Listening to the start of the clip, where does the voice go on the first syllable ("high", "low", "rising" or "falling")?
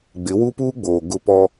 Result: rising